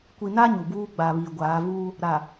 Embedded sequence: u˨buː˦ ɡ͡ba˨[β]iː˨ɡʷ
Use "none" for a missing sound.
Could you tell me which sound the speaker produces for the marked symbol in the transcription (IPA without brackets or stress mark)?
β